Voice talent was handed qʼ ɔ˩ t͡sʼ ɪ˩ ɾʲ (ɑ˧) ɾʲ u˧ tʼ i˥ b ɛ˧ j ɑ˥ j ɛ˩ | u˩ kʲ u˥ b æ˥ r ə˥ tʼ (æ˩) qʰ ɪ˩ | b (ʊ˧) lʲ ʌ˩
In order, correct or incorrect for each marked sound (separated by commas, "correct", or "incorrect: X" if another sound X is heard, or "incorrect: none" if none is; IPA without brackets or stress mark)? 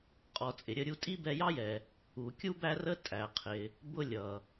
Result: incorrect: ə˧, correct, correct